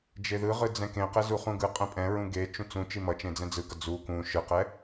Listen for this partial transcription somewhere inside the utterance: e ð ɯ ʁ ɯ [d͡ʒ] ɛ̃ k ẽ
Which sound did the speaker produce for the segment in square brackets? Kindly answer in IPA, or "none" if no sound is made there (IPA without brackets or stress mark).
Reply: d͡z